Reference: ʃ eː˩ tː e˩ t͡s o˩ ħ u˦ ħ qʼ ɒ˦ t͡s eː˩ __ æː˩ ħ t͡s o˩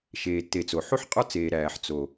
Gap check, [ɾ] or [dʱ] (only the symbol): ɾ